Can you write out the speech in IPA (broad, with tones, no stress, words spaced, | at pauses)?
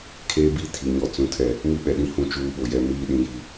kʰeː˦bi˦tʰi˨ ɲɔ˨t͡sũ˨tʰɛ˨ | mi˦ɓɛ˨ɗĩ˦ hũ˦t͡ʃuː˦ ɓo˨jɛ˦ miː˦ ɗĩ˦ji˦